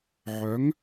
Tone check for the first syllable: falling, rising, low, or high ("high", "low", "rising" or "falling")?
rising